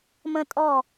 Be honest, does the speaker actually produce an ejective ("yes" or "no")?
yes